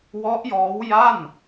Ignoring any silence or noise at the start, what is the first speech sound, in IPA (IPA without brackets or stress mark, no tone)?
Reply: w